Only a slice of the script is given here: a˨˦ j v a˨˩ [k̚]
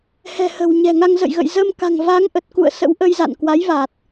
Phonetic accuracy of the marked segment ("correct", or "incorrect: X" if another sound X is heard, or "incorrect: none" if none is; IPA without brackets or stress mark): incorrect: t̚